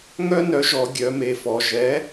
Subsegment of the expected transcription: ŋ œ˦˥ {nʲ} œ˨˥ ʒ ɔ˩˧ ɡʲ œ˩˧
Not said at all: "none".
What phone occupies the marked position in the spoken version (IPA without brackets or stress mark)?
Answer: n